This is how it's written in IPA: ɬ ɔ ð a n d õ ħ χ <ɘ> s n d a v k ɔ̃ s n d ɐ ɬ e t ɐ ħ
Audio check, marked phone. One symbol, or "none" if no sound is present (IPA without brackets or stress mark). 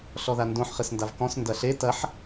ɘ